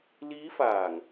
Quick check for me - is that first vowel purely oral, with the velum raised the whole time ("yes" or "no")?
yes